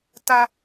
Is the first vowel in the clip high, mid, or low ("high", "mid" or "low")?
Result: low